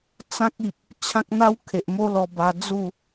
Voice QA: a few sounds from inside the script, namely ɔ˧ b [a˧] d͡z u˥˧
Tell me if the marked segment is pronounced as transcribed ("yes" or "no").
yes